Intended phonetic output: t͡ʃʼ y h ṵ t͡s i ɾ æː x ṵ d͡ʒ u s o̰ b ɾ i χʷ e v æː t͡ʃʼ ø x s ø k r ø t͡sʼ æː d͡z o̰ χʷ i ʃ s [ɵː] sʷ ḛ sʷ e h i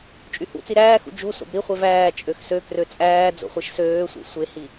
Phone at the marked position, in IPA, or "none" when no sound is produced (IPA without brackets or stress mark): øː